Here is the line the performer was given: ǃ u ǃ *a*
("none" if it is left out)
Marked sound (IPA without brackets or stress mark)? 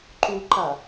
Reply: a